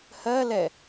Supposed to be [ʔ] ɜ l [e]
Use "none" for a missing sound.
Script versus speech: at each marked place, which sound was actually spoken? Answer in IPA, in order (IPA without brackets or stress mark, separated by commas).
h, ɛ